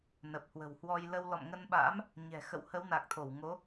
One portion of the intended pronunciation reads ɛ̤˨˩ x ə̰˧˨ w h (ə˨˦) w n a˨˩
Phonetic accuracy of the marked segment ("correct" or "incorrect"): correct